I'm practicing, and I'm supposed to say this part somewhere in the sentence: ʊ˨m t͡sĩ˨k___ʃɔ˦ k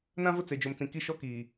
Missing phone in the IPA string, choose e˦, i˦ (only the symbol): i˦